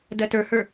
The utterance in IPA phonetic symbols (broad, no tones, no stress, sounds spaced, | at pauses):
d ɜ t ə˞ h ə˞